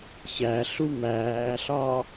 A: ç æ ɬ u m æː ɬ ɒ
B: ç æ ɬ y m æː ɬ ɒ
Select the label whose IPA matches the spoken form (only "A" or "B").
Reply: A